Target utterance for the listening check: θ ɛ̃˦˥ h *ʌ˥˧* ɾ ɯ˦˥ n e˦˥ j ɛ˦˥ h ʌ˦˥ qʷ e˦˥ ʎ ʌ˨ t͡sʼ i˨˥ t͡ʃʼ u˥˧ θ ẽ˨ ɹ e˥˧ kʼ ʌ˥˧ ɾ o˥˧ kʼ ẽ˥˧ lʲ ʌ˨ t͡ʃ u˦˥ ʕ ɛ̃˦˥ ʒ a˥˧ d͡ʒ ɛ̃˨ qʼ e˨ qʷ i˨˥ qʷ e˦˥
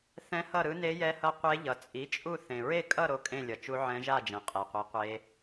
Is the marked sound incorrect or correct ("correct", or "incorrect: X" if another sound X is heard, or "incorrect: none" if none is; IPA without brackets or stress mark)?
correct